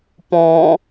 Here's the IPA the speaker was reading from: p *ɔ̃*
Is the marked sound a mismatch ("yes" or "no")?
no